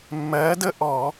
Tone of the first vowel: rising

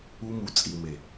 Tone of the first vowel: high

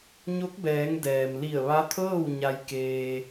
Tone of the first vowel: rising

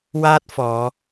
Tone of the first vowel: high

